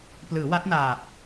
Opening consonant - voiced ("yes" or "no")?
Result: no